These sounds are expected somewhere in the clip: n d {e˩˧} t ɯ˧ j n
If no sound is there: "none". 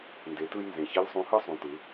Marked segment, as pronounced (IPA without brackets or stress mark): e˩˧